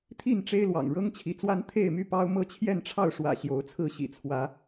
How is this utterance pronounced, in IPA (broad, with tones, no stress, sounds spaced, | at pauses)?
t̪ʰ i˥˨ n ʈ͡ʂ e˦ ɪ̯ l w ɑ̰˨˩ ŋ ɻ ɤ˦ ŋ t͡ɕʰ i˨˦ t͡s w a˦ n t̪ʰ e˥˨ ɪ̯ m y˥˨ p ɑ˦ ʊ̯ m ɤ˦ t͡ɕʰ j ɛ˥˨ n ʈ͡ʂʰ ɑ˥˨ ʊ̯ ʂ w ä̰˨˩ ɕ j o˨˦ ʊ̯ t͡sʰ ɹ̩˥˨ ɕ ḭ˨˩ t͡sʰ w ä˨˦